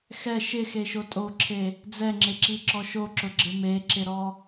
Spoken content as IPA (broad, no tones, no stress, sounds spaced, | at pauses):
x ɛ ʃ ɪ x e ʃ o tʼ o ǁʰ e | d͡z ɛ ŋ͡ǁ ɪ ǁ i ǁ ɔ ʃ o ǁ ʊ ɡ͡ǁ ɪ m e ǁ ɪ ɾ ɔ